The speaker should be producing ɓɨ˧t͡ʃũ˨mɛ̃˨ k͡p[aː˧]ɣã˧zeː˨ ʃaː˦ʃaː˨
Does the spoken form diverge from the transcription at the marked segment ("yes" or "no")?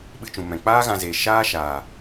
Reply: yes